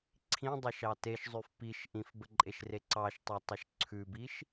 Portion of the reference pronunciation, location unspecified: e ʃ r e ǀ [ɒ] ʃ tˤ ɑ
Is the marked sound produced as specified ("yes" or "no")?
no